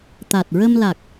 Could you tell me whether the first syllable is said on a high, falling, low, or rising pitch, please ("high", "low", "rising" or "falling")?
low